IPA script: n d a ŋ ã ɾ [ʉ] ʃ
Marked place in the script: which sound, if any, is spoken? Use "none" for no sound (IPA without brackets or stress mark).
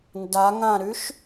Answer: ʉ